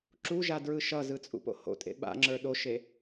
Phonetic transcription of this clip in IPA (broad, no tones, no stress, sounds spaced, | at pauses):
ǁ u ʒ a d ɹ ɯ ʃ ʌ z ɯ t͡sʼ ṵ p o̰ h o̰ tʼ ḛ ɓ a̰ ŋ͡ǁ ə˞ ɗ o ʃ e